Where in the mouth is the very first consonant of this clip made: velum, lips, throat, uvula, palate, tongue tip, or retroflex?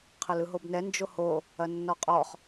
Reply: uvula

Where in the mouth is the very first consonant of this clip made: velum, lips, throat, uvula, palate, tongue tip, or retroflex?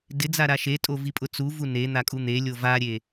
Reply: tongue tip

